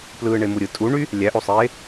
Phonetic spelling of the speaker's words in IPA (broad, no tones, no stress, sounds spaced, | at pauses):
p l ɯː ɳ e m u ɾʲ ɯ tʼ u ɳ y | lʲ æ ʔ o sˤ eː